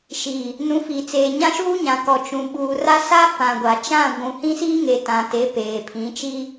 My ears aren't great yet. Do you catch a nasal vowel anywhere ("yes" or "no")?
yes